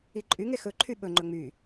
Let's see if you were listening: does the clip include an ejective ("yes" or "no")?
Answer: yes